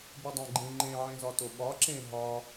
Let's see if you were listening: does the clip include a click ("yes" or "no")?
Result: yes